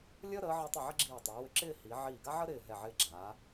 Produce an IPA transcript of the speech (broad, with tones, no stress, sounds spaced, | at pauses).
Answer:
lʲ əː˥ ɾ əː˩˧ ʕ əː˧ tˤ ə˧˩ ʕ ə˥ ɡ͡ǁ iː˧˩ tˤ ʏː˩˧ w ʏ˧ ǁ ɪː˥˧ h i˩˧ ʕ iː˧˩ ɡ a˥ ʕ ə˥ ɾ ɪː˧˩ ɦ ɛ˧˩ ʕ ɪː˧ ɡ͡ǁ aː˩˧